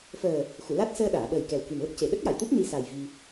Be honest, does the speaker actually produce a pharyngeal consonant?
no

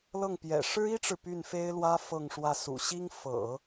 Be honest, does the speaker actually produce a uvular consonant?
no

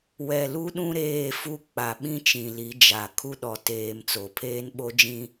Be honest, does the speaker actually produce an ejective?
no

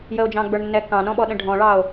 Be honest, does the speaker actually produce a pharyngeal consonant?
no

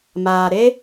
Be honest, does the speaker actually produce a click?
no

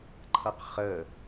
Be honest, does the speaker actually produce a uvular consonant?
yes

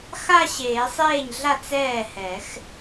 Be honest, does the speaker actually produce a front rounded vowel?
no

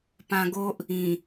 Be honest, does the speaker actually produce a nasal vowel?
yes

